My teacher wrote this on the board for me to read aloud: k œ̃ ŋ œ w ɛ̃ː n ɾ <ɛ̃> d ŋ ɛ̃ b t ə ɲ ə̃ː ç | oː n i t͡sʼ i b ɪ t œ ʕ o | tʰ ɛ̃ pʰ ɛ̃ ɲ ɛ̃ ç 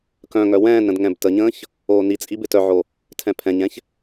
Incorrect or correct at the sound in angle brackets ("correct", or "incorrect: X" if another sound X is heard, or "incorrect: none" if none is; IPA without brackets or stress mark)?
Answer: incorrect: ə̃